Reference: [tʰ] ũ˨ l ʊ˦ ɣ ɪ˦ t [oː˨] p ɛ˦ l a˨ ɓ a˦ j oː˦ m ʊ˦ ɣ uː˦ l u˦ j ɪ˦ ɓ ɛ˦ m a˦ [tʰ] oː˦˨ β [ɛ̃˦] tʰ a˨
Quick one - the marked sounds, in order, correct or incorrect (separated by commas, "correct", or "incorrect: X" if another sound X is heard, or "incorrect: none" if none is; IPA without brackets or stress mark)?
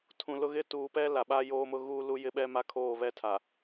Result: correct, incorrect: uː˨, incorrect: kʰ, incorrect: ɛ˦